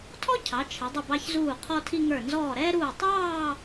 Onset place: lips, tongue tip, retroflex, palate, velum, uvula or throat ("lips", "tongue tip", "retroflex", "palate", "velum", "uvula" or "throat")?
tongue tip